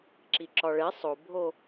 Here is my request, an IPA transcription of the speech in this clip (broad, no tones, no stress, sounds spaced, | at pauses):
ǁ i ǁ ɒ ɭ e sˤ o bʱ o